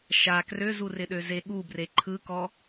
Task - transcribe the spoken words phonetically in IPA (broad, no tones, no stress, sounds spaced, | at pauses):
ʃ a k r ø z u r ɪ ɗ ø z e ɠ u b r e ǃʰ ɯ k ɔ